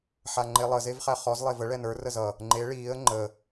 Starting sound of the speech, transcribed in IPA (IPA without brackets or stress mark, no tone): ħ